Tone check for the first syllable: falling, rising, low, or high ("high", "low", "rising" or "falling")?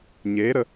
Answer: rising